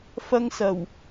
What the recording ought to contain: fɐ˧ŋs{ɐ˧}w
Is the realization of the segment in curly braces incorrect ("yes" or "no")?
yes